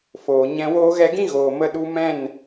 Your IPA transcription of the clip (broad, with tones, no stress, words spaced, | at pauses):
foː˨ ɲɛ̃˧woː˦ɣɛ˦ ɡĩ˦ɣoː˨ mə˦ɗu˦ mɛ̃˦˨n